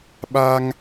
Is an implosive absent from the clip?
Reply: no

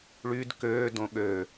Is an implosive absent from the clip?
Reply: no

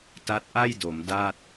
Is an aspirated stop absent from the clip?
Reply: yes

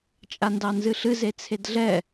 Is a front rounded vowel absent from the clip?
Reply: yes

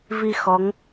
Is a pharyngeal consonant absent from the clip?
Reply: yes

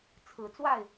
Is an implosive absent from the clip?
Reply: yes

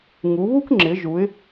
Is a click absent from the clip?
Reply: no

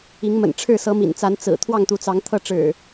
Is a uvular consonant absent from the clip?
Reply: yes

